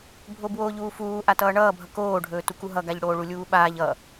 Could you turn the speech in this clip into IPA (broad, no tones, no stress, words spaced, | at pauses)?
bʱobwoːʎuːfuː ʔatʌːɳʌːbʱʌ koːɖʱɵː tukuɦʌɡaʎ ɽoːɭulʲuːɓaːʎ ʌ